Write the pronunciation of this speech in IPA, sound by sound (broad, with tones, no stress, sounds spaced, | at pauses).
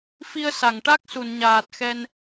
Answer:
f i˧ ə̯ s a˨˩˨ ŋ ʈ a˦˥ k̚ s u˨˩˨ n ɲ aː˨˩ t̚ x ɛ˧ n